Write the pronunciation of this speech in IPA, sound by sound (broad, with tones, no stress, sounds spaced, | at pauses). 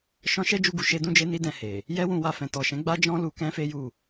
ʃ ɔ̃˧ ʃ ɛ˦ d͡ʒ u˧ ɡ u˨ ʃ e˧ d ũ˦ d͡ʒ e˦ n i˦ d ɛ̃˧ h e˨ | j ɛ˦ w ũ˧ w a˨ f ɛ̃˨ t ɔ˨ ʃ ɛ̃˨˦ ɡ͡b a˦ d͡ʒ ɔ̃˦ l u˧ k ɛ̃˦ f e˦ j u˦˨